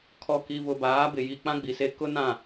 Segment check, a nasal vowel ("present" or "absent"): present